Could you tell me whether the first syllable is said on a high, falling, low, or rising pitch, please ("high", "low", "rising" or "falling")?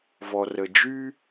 low